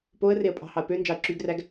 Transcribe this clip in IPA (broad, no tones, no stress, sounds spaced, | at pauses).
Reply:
p o ə̯ r e ə̯ pʼ ɑ̤ h ɑ ə̯ p ø n d͡ʒ ɑ ə̯ ǁ y ɡ r æ ɡ